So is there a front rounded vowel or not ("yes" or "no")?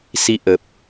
no